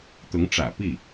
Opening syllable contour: rising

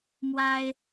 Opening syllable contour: high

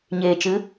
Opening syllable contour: low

